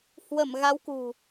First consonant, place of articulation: glottal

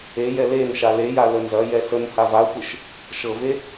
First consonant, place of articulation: palatal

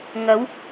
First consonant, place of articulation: velar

